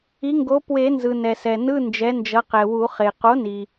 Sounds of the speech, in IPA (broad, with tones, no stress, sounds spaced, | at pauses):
i˩˥ ŋ ɡ o˩˥ p w e˨˩˦ n z ɯ˩ n ɛ˩ s ɛ˩ n ɯ˧˥˧ n d͡ʒ ɛ˩˥ n d͡ʒ ʌ˩˥ q ɛ˩ w u˨˩˦ χ e˩ q o˩˥ n i˩